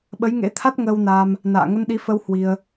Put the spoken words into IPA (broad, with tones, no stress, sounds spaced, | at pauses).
ɓ ə˨˦ j ŋ ḛ˧˥ t̪ʰ a˦˥ t̚ ŋ əː˧ w n aː˧ m | n a̰ː˧˨ ŋ ə˧ n ɗ i˨˦ f ə˧ w h w i˧ ə̯